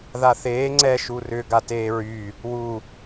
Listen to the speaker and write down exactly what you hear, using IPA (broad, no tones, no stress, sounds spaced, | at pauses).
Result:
ð a θ eː ŋ͡ǀ ɛ ʃ u r ʏ ɡ a t eː ɹ y | w u